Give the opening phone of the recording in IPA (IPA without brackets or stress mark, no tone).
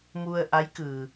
m